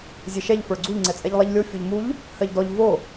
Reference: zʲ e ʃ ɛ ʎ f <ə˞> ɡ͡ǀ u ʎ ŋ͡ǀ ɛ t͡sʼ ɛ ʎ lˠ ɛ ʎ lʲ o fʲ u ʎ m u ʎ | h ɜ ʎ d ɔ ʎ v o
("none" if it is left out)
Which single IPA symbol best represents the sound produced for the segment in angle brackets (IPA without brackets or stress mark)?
ə˞